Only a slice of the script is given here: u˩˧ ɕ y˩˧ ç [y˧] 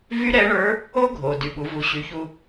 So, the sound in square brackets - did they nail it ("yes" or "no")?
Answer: no